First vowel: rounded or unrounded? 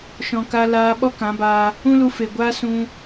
rounded